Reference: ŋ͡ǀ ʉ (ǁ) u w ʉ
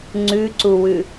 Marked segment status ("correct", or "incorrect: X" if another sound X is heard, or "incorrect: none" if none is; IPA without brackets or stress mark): incorrect: ǀ